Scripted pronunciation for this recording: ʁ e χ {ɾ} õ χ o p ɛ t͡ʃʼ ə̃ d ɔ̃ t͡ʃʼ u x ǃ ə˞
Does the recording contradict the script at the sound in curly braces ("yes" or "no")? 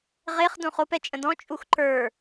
yes